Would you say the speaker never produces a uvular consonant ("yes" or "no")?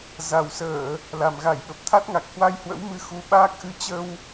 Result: yes